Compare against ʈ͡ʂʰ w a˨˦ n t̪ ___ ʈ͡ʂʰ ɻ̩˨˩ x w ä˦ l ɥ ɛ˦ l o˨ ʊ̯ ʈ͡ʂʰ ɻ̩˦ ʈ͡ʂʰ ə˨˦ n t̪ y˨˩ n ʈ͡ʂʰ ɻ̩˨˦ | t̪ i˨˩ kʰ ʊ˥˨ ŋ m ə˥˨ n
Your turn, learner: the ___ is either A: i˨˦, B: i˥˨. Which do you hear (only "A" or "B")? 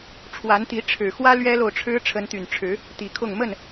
A